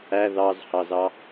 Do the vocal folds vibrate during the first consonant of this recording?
yes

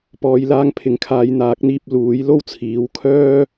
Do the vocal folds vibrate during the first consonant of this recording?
no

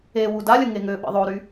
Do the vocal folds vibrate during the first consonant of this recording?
yes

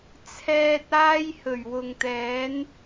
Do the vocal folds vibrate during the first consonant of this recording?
no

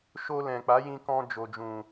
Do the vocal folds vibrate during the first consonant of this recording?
no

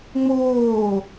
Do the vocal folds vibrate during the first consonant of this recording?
yes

